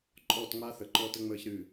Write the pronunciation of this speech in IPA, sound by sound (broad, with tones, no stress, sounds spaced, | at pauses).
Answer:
ǃʼ ɔ˦˨ t ŋ͡m a˦ θ ə˨ ǃ ɔ˦ t ə˦ ŋ͡m əː˦ ç ɾ ɨ˨